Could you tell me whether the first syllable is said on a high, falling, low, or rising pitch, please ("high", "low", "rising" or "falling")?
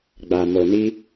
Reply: low